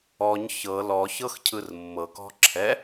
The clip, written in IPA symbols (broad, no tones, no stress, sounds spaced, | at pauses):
ɔ ɲ ç ɤ l ɔ ç ɤ x cʰ ɯ r mː ɤ k ɔ̤ ǁʰ ɛ